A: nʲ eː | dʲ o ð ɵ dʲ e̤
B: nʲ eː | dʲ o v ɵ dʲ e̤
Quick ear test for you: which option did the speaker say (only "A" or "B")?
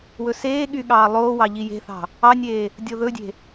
A